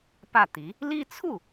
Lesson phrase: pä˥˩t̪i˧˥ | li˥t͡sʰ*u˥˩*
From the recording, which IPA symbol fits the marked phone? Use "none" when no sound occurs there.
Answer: u˥˩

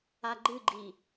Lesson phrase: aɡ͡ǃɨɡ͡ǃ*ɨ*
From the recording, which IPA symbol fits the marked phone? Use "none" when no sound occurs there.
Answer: i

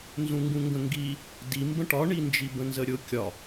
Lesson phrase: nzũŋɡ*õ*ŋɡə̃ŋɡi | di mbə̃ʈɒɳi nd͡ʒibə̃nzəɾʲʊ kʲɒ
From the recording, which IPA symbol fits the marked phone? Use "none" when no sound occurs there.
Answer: ũ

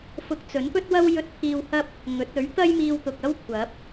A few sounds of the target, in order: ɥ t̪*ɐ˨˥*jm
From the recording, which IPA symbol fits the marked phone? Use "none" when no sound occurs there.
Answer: ɐ˥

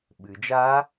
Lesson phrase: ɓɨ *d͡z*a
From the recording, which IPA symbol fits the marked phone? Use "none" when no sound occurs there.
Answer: d͡ʒ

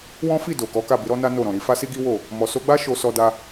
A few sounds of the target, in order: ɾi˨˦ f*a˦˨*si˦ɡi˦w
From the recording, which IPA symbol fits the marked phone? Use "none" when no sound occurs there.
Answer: a˦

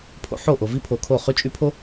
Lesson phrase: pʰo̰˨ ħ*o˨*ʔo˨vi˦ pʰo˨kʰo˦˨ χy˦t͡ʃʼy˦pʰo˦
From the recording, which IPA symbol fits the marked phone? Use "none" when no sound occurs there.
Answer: o˦˨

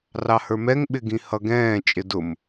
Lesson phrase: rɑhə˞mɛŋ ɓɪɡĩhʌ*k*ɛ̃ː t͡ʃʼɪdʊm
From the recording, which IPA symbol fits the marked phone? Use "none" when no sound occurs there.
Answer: ɡ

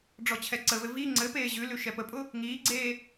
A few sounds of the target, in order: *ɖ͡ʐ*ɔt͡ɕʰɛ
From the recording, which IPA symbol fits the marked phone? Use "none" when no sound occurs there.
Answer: ɖ͡ʐ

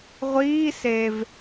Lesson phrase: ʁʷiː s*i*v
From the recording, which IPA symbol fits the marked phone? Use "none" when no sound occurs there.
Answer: e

